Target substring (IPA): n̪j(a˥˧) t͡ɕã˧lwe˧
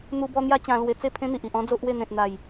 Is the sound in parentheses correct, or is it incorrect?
incorrect